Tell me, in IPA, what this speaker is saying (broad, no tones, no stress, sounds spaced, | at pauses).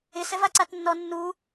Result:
ɪ s ɛ v a ǀ a t nː ɔ nː u